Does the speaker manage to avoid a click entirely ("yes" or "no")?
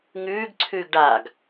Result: no